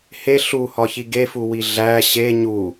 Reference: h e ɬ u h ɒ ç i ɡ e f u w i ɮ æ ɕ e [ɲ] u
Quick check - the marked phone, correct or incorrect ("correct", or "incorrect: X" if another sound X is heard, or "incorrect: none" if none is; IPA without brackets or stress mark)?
correct